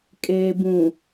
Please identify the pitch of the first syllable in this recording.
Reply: low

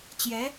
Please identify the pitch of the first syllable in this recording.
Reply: rising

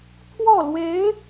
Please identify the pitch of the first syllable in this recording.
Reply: falling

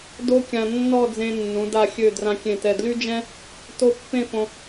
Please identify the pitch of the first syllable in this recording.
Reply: high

